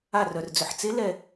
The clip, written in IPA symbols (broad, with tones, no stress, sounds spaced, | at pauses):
a˧˩ r œ˩ r d͡z ʏ˩ ħ t͡s e˧˥ l ɛ˧˩